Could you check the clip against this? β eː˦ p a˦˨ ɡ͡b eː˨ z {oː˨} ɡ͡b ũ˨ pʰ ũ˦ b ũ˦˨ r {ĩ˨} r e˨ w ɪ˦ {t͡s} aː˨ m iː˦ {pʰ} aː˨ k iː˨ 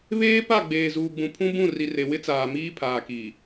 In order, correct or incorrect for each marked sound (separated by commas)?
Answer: incorrect, incorrect, correct, correct